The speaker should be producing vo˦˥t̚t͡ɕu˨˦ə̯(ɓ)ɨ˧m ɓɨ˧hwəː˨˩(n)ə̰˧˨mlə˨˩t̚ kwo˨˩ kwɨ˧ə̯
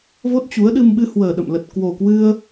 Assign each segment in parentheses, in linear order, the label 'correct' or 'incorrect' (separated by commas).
incorrect, incorrect